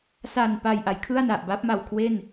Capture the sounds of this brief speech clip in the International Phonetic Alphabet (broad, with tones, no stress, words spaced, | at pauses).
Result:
sa˨˩npa˨˩j ʔa˩˦jkʰɯ˥˩a̯na˨˩ʔba˦˥p̚ ma˨˩wkʰwe˥˩n